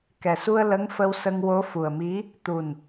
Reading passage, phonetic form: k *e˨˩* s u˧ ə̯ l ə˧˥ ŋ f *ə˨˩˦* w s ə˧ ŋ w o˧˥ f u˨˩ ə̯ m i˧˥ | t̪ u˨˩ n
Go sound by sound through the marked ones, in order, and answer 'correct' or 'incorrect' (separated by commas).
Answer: incorrect, incorrect